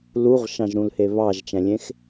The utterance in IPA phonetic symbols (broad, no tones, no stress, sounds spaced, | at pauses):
l u ʁ ʃ ɑ̃ ʒ ɾ ũ l h e β ɑ ʒ t͡ʃ æ̃ lʲ ẽ x